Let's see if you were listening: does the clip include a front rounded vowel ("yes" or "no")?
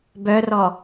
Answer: yes